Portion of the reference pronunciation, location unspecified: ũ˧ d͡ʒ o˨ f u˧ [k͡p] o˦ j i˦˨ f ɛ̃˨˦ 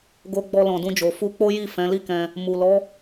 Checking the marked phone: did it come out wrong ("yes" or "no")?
no